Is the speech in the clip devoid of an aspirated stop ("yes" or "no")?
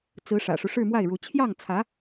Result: no